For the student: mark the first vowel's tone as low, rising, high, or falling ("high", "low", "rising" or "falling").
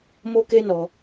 high